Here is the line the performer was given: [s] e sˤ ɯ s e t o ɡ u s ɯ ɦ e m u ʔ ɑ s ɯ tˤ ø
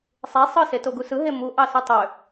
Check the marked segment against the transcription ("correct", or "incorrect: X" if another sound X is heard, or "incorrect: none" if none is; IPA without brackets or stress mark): incorrect: sˤ